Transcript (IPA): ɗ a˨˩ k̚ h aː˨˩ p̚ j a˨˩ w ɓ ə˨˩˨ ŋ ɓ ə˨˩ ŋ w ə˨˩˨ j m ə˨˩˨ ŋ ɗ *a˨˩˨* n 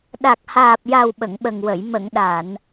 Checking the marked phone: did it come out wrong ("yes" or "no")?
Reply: no